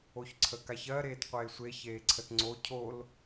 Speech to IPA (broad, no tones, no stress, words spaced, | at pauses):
oçǀʰəkaçɜ ɾeːtqʷeːsʷe çeːǀʰətŋ͡ǀo cʰol